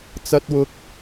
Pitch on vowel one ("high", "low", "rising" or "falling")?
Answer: high